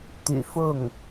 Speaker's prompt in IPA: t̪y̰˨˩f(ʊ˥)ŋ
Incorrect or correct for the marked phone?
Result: incorrect: ʊ˥˩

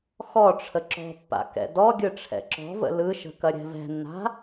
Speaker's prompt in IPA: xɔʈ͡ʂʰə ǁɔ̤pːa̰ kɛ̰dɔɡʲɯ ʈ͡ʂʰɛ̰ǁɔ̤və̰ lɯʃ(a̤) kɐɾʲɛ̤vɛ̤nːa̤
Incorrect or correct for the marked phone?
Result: incorrect: ə̤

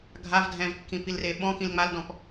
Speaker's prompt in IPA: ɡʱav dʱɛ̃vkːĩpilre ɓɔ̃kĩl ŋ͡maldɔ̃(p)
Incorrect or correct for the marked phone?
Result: correct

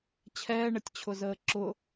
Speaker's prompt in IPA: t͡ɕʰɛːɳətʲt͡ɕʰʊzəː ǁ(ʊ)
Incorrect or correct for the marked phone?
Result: correct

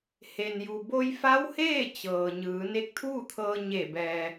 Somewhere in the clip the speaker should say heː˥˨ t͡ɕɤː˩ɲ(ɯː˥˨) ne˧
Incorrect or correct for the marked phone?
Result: incorrect: ɯː˩˧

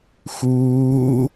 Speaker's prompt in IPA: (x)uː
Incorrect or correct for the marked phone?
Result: correct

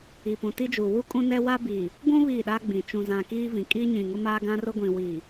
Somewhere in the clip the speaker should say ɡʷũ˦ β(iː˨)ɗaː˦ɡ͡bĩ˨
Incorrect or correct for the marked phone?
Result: incorrect: iː˦˨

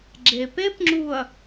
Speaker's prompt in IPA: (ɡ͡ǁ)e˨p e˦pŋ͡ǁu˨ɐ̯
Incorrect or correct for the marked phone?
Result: correct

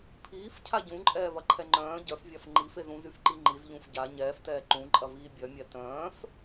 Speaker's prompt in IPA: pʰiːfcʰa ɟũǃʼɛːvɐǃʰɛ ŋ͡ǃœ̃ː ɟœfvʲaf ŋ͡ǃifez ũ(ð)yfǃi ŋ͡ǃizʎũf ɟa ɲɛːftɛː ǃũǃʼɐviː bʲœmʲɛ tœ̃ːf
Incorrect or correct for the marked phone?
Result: incorrect: z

